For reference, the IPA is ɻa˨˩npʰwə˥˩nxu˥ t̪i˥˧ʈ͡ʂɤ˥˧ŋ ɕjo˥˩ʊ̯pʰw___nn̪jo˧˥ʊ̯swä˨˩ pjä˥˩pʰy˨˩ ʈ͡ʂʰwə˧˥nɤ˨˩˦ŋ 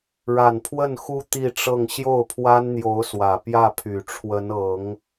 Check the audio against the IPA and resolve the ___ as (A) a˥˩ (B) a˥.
B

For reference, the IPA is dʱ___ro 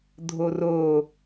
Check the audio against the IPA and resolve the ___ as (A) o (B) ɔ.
A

